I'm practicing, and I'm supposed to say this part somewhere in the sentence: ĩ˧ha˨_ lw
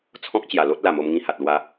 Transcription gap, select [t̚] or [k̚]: t̚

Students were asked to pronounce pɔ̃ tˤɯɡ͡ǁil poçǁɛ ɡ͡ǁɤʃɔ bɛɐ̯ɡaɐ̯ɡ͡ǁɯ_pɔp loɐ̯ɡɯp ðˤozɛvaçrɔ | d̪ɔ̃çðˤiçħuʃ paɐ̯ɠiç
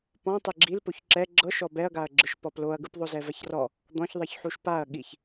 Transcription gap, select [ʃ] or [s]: ʃ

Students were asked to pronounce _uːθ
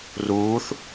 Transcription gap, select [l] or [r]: r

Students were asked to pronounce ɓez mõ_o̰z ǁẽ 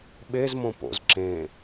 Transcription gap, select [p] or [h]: p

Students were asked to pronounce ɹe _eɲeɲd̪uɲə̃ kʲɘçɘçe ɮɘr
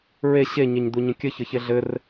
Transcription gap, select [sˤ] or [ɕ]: ɕ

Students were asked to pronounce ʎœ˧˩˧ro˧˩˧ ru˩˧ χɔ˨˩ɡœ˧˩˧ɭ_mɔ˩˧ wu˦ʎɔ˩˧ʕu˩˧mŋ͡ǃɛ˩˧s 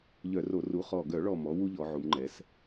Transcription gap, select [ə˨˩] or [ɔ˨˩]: ɔ˨˩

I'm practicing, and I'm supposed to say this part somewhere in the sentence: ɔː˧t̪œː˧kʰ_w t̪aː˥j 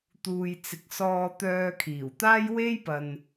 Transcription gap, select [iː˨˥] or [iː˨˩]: iː˨˩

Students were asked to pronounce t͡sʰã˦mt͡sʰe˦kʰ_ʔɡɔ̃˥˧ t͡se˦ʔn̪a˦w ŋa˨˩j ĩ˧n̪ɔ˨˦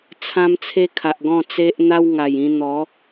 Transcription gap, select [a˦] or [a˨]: a˨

